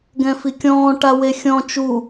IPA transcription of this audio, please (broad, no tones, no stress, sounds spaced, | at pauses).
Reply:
ɡ ɛ̃ f i kʲ ɔ̃ː ʈ a w e xʲ ɔ̃ t͡ʃ u